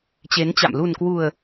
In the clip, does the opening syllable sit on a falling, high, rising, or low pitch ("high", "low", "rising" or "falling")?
rising